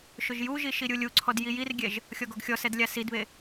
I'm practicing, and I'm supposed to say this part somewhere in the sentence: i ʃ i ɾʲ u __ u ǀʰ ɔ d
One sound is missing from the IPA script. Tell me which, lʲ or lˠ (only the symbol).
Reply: lʲ